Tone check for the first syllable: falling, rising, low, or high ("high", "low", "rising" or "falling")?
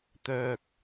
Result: low